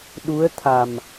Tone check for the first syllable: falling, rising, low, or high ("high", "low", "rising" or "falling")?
rising